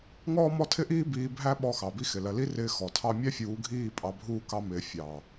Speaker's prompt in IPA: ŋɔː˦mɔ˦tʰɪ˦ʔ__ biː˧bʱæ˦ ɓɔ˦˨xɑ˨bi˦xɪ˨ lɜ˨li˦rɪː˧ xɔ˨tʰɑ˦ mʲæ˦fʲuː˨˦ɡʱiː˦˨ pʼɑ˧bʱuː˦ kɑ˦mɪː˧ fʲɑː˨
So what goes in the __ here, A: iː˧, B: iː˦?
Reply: B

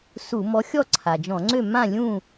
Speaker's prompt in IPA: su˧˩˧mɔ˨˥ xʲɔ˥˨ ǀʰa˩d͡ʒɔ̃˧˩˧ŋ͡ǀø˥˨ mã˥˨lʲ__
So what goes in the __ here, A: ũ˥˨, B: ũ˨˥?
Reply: A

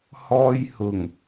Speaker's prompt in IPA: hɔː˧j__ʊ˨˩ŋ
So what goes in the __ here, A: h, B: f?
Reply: A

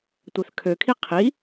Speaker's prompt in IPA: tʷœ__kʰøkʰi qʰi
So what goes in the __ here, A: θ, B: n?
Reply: A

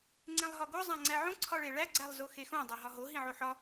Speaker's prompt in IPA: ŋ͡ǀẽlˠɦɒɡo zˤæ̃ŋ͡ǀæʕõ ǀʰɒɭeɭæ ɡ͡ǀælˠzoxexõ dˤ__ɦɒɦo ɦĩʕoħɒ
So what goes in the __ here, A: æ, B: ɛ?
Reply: A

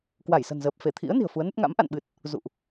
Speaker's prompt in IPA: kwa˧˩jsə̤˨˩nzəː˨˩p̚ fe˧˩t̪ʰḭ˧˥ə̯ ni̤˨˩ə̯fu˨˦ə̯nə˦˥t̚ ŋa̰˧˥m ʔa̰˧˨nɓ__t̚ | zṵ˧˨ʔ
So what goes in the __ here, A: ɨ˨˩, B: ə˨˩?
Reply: A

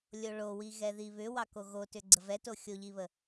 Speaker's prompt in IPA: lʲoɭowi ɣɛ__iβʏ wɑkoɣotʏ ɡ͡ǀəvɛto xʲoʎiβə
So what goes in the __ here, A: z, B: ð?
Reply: B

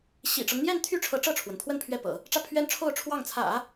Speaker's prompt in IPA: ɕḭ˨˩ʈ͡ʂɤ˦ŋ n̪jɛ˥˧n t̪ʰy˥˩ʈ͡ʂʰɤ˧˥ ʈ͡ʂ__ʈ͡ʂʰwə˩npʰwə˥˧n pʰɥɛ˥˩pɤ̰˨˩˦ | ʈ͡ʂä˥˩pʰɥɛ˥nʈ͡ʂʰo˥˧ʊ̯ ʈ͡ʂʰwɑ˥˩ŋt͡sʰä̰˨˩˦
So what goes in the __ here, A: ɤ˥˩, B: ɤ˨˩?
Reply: A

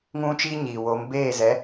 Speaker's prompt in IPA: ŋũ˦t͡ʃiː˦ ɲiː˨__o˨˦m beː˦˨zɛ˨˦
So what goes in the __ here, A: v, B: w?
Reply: B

